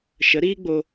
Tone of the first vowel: rising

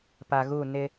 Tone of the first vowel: low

